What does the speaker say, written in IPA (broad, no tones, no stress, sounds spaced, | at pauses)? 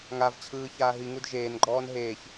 ŋ a v t͡ɕʰ ɯː ç aː ɦ i ŋ u d ʒ eː n ɡ͡ǃ ɔː n ɦ eː ç